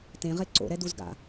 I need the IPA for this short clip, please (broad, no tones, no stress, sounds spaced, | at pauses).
t ẽ ʁ e ǀ o̰ ɾ ɛ d u z ɡ a̰